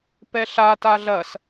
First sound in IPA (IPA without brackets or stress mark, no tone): p